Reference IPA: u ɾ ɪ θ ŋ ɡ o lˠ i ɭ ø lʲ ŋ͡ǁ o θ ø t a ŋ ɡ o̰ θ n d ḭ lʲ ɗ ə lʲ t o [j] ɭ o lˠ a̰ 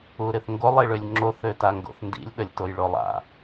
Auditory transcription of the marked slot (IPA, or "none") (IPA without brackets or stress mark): j